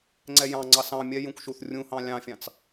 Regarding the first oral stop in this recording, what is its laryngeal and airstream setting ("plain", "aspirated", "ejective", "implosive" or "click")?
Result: click